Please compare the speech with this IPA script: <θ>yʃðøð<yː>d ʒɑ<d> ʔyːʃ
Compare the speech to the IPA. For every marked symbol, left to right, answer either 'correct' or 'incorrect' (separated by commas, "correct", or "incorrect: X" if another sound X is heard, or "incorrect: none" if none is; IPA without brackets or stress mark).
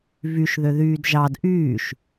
incorrect: v, correct, correct